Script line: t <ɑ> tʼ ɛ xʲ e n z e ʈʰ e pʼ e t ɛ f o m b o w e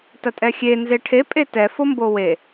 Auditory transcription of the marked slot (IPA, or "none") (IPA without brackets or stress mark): ɐ